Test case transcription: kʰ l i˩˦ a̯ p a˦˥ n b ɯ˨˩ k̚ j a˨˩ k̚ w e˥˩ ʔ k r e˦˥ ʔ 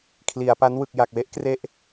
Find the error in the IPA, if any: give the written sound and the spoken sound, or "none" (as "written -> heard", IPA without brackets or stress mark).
b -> w